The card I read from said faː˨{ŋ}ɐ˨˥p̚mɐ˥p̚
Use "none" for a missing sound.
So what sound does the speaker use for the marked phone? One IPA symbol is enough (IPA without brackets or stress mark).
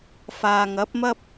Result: ŋ